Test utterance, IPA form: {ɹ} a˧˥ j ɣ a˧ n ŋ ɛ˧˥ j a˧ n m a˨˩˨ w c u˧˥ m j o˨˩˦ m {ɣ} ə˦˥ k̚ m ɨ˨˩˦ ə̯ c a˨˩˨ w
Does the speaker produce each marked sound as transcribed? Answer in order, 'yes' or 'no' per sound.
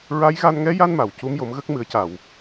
yes, yes

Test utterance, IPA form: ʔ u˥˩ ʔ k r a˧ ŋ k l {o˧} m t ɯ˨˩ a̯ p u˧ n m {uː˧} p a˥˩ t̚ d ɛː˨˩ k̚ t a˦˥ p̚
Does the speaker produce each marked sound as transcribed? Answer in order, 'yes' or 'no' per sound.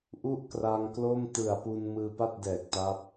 no, no

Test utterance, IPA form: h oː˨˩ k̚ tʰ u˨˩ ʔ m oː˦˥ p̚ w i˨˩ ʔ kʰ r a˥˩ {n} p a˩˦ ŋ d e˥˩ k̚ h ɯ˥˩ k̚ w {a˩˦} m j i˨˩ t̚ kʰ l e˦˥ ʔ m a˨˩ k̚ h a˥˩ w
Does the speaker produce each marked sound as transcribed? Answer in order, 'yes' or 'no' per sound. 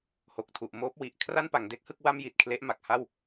yes, no

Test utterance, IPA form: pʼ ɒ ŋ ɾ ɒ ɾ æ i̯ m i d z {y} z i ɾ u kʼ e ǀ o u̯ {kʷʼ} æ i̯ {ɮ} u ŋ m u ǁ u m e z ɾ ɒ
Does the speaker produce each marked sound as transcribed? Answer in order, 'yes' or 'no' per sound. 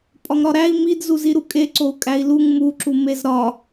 no, no, no

